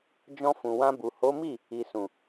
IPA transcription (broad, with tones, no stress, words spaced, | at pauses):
d͡ʒɔ̃˧fũ˨wã˧bu˨ ho˨˦mi˦˨ | i˨sũ˨